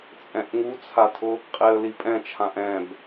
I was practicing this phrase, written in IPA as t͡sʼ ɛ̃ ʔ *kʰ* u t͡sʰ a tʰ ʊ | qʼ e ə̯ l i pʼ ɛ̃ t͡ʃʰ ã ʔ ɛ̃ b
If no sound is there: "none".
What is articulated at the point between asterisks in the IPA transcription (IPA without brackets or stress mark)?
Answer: ŋ